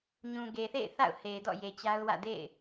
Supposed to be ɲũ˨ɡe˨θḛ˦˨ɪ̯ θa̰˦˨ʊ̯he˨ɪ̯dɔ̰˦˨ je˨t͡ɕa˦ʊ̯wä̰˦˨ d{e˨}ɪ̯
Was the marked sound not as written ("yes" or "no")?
yes